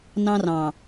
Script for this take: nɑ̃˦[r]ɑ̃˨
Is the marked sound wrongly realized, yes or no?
no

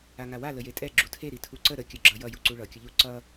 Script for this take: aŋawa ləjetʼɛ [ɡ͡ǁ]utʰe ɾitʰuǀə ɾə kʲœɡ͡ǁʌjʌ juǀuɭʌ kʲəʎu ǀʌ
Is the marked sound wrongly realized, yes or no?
no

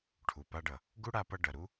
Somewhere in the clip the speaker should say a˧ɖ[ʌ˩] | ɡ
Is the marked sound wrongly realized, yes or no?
no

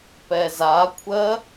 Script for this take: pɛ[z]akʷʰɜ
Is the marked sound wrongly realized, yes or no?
no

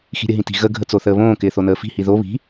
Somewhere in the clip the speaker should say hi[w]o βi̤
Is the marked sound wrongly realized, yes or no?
yes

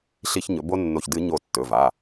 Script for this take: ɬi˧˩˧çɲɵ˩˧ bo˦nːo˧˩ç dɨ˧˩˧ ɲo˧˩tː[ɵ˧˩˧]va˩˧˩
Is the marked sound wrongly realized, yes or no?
yes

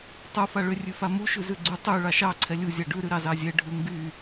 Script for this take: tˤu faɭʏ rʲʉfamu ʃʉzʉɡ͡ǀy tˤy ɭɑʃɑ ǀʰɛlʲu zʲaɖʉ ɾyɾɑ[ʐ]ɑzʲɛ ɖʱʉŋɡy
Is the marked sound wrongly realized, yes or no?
yes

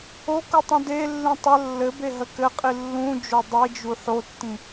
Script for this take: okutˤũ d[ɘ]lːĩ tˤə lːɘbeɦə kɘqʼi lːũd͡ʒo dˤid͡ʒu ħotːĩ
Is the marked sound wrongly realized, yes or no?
yes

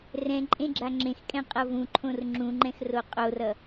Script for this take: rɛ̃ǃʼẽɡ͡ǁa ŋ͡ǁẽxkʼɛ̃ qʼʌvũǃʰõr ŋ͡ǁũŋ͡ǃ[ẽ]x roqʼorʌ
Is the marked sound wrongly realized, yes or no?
yes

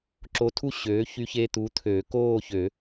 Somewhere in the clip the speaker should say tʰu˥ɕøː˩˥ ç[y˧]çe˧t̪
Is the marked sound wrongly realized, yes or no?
no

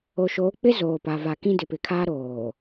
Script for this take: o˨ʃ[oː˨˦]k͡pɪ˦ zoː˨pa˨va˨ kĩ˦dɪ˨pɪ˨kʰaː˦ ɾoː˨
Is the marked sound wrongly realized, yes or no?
no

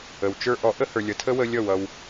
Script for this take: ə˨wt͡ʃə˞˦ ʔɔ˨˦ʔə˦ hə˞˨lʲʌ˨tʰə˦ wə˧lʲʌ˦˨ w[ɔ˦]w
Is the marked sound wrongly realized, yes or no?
yes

